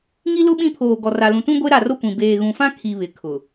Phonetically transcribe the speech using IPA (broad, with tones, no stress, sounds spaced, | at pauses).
ŋ i˦ l ʊ˦ ɓ ĩ˦ pʰ oː˨ ɡ ɔ˨ r a˨ l ũ˨ t ũ˦ ɡʷ e˦ ɾ a˦˨ r o˦ kʷ ĩ˨ b eː˨ ɣ ũ˨ f ã˦ kʰ i˨ β ɪ˨ kʰ ʊ˨